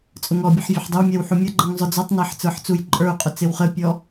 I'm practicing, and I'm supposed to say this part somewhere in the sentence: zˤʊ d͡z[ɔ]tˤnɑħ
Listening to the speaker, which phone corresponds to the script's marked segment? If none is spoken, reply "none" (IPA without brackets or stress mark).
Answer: ɔ